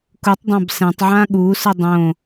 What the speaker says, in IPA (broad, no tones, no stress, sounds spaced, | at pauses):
k u tˤ dˤ ã b s ɛ̃ tˤ ʕ ã ɠ u s ɯ dˤ õ